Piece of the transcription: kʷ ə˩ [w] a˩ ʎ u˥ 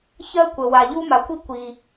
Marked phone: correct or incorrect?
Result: correct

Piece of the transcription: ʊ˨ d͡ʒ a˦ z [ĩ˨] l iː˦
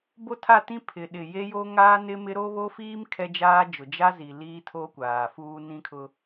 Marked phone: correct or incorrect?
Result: incorrect: i˨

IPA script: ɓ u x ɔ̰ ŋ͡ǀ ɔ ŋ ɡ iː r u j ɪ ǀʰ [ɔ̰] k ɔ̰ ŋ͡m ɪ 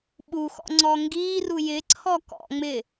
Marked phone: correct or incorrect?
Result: incorrect: ɔ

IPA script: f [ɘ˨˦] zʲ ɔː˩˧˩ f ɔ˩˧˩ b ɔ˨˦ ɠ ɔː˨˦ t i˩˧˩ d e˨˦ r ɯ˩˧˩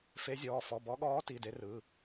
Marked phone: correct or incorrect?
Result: incorrect: e˨˦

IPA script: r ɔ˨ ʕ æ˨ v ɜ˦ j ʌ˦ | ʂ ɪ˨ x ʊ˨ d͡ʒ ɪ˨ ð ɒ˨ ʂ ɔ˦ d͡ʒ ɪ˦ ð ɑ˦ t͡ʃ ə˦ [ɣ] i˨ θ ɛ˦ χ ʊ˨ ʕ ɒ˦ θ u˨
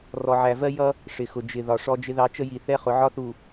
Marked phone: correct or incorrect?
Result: incorrect: j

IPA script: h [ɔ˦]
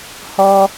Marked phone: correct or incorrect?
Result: correct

